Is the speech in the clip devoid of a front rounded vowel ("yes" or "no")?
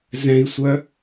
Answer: no